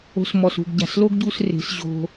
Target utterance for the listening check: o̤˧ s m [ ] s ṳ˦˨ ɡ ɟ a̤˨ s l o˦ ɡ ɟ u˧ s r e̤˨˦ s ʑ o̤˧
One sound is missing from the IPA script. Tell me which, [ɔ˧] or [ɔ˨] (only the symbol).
ɔ˨